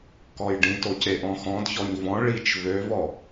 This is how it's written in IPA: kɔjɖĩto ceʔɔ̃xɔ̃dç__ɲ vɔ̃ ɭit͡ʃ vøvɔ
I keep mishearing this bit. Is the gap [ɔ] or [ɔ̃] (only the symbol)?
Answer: ɔ